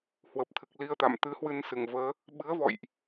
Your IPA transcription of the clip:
hwə˨˩p̚t̪ʰɨ˨˩k̚li˧ə̯t̪a̰˧˨m t̪ɨ˨˦hwɨ˧nsɨ˧˩ŋvəː˨˦ | ɓɨ˨˦ə̯vɔ̰˧˨jʔ

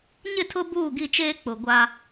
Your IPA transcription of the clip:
ɲɪ˦˨tʰʊ˦ buː˦˨ɡi˦˨t͡ʃeː˦ k͡pʊ˨ ɡʷa˦

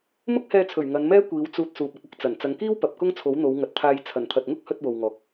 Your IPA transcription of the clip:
mʊ˥k̚hɛː˧t͡sʰɵ˨˩ɥ ŋɐ˨˧nmɛː˥ kʷiː˨˧wt͡suː˧t̚ suː˨p̚ɐ˧k̚ɐ˥k̚t͡sɐ˨˩n t͡sɐ˨˧ŋkiː˥wpɐ˨p̚ kʊ˥ŋt͡sʰo˨˥wn̪o˨˧w ŋɐ˨t̚t̪ʰaː˧j t͡sʰɐ˨˩nt̪ʰɐ˨t̚ŋʊ˥k̚ hɵ˧t̚ wo˨wŋɔː˨˥k̚

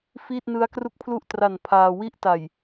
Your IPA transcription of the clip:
fiː˥˩t̚nɯ˦˥a̯kru˥˩k̚pʰlu˥˩ʔ tra˨˩n pʰaː˧ wi˦˥ʔta˨˩j

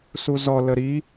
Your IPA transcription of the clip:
suzɔ ləɾi

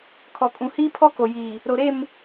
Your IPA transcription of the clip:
kʰɔ˨kʼũ˨ hiː˦pʰɔ˦ko˨jiː˨ | ɾo˨ɾe˦˨m

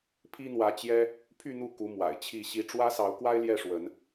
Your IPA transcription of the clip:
pʰi˦n̪wä˨˦t͡ɕjɛ˦ | pʰy˥˨n̪u˥˨ku˨˦ mwa̰˨˩ɪ̯t͡ɕʰi˥˨ɕi˥˨ ʈ͡ʂwä˦sɑ˨˦ʊ̯kwa˦ɪ̯ ljɛ˥˨ʂwə˨˦n

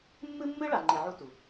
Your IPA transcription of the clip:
mːɨ˥mːɨ˥ ɭa˧ŋ͡ǃe˧ʕu˥tu˩

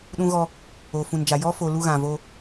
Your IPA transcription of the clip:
ɗũ˦ɣɔ˦ | o˨fũ˨nd͡ʒa˨ jɔ˦fo˨ lu˦ɣã˨ vo˦

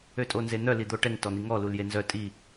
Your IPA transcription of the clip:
øtʼonzen̪œ lid̪oʈɛŋ tɔn̪iŋɔ luljenzœ tʼi

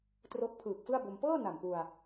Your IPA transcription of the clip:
tro˦˥k̚pʰɯː˨˩k̚fɯ˥˩a̯bo˧m pɤː˥˩ na˨˩mpu˧a̯

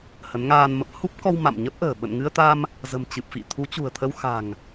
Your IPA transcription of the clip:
hə˨˦nŋaː˧nmə˦˥p̚ hu˦˥p̚kɔ˧w ma̰˧˨mɲə˦˥p̚ʔə̤ː˨˩ ɓə̰˧˨nŋɨ˧ə̯t̪a˧m | zə̤˨˩mt͡ɕɨ˨˩p̚fḭ˧˨ t̪ʰu˨˦t͡ɕṳ˨˩ə̯t̪ʰə˧w xa̤˨˩ŋ

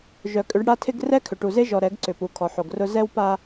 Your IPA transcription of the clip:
ʒœ˨kʼʏ˨˦ɖ ɽa˦ tʰɪ˦ɡ rɛ˦kʰʏ˨ʈu˨ze˦ ʒɔ˨ ɾɛ˨˦ɡǀʏ˨pu˨ kʰɔ˨ħo˨ɡrʊ˦ zɛ˦wpa˦

